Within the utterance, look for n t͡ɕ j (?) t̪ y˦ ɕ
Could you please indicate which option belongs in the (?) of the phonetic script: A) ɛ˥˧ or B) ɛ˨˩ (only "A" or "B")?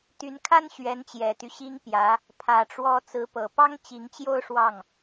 B